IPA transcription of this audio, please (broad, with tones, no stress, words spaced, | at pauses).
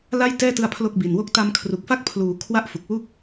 la˥˩jtɛː˥˩tɯ˧a̯ pʰlo˥˩k̚bi˨˩nwo˥˩k̚ ta˧mkʰru˨˩k̚fa˥˩k̚ pʰluː˨˩ kʰwa˥˩ʔfu˨˩k̚wu˥˩k̚